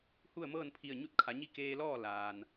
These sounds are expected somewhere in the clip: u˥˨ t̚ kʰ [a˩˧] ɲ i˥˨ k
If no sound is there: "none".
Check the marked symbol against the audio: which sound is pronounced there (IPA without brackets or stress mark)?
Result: a˩˧